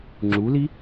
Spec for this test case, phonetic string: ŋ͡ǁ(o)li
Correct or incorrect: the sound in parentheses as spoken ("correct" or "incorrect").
incorrect